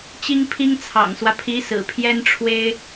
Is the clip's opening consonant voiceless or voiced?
voiceless